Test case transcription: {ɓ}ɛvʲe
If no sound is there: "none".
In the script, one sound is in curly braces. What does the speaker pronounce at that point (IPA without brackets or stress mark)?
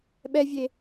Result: ɓ